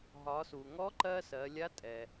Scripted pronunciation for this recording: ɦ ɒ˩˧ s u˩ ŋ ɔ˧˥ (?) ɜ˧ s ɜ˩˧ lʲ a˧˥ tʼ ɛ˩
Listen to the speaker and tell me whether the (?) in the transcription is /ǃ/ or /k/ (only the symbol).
ǃ